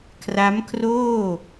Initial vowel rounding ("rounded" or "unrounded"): unrounded